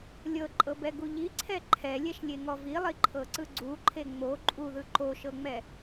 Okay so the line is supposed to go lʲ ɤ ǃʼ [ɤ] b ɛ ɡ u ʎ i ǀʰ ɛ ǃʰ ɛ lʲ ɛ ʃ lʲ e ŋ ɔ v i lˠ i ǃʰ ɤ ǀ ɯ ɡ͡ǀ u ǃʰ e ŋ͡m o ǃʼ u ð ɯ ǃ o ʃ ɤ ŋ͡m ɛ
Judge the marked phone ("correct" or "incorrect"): correct